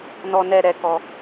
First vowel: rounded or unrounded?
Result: rounded